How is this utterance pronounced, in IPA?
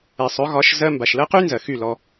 ɛ˨ sˤ ɵ˨˦ ɣ ɒ˨˦ ʃ z ɜ˧ m b a˨ ʃ l ɜ˦ q y˦ n z ɜ˨ x y˦˨ l ɔ˧

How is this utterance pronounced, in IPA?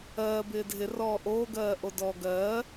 ɜː b ɪː dʱ ɪ r ɔː ʔ oː ɡ ɜː ʔ o d ɔː ɡ ɜː

